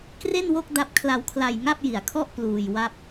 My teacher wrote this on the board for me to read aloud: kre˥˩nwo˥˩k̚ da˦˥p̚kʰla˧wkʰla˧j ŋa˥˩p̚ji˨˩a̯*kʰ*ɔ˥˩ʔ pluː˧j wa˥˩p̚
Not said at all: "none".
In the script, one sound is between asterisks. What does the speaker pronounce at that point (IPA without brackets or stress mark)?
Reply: kʰ